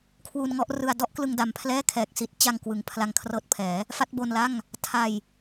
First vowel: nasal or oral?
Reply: oral